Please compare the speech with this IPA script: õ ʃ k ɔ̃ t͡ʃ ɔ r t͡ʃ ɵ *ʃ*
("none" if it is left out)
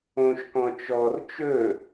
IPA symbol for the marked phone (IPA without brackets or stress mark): none